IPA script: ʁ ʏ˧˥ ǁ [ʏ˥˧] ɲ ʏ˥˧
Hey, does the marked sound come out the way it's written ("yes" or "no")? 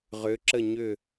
no